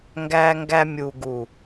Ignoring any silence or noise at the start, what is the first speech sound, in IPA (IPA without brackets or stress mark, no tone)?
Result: ŋ